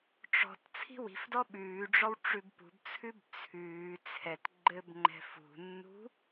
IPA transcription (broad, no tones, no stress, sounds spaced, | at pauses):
ʈ͡ʂ ɔ̤ t t͡sʰ i̤ w i̤ f d ɔ ɓ ʉː ɖ͡ʐ ɔ w ʈ͡ʂ ʉ b p ṳ b t͡sʰ ʉ b t͡sʰ ʉː t͡sʰ ɛ t ɡ͡ǃ ɘ b ŋ͡ǃ ɛ̤ f ṳ nː ṳ